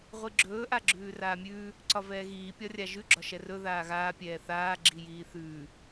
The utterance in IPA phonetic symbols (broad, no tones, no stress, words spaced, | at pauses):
ʁʷiɡ͡ǁɵː ʔaɡ͡ǁʉːraːmʲʉː | ǀɒvɛːɣiː pʲɒrʲaʒʉ ɡ͡ǁɒʃɛrɵ ðaːɣaː pʲɛːθaː ɡ͡ǁijiːθʉː